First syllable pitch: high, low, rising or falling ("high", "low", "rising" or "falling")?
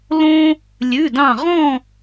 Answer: high